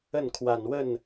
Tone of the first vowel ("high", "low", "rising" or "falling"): falling